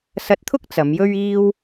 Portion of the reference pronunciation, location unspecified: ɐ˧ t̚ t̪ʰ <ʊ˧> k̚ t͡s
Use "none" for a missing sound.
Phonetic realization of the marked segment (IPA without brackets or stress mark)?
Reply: ʊ˥